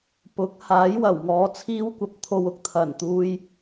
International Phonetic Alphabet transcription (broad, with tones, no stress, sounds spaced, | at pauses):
p ʊ˨˥ k̚ h aː˨˥ j w ɐ˨˩ w ŋ ɔː˨˧ t͡sʰ iː˥ w kʷ ɐ˧ p̚ t̪ʰ o˧ w ʊ˥ k̚ t̪ʰ ɐ˨˩ n t̪ uː˧ j